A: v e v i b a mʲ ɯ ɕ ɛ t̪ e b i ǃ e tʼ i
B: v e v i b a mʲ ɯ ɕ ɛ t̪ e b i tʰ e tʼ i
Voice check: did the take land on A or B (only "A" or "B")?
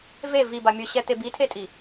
B